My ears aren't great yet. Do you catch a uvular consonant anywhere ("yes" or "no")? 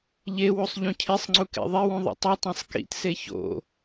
no